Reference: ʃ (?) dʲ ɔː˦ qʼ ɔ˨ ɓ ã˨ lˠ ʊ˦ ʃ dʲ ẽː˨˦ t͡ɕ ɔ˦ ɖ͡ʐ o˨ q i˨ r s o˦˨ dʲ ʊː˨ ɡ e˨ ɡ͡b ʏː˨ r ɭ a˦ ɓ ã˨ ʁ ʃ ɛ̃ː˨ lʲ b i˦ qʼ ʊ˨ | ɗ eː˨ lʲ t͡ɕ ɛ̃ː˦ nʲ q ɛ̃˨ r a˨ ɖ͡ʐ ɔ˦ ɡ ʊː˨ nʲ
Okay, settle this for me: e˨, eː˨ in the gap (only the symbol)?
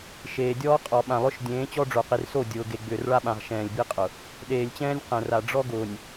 eː˨